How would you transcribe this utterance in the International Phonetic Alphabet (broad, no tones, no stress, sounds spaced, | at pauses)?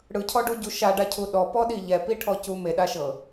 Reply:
ɽ ɯ cʰ ɔ ɖ u ɟ u ʃ a ɖ a cʰ u ɗ ɔ p ɔ ɗ i ʎ ɛ p i ʈʰ ɔ c u m e ɗ a ʃ ɤ